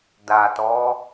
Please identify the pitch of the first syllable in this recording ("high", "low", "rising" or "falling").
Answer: low